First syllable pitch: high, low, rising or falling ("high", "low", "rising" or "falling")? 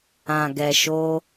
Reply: low